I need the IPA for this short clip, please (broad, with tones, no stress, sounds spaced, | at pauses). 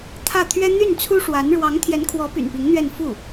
t̪ʰ ä˥˩ t̪ʰ ɥ ɛ˥ n̪ y˥˩ n t͡sʰ u˥ ʂ w a˧˥ n ɻ w ɑ˧˥ ŋ t̪ʰ j ɛ˧˥ n kʰ w ɔ˧˥ p y̰˨˩ n p i˧˥ ŋ n̪ ɥ ɛ˥˧ n f u˥˩